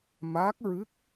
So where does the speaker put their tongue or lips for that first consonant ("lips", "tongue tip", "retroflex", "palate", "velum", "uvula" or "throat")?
lips